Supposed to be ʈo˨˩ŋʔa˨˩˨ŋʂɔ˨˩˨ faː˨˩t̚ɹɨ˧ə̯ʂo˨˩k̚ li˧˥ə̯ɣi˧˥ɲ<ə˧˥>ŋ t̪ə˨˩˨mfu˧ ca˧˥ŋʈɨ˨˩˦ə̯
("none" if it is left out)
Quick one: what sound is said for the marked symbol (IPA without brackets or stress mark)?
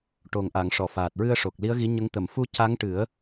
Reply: ə˧˥